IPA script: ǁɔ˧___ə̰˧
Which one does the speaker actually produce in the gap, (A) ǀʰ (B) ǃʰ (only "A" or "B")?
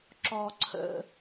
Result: A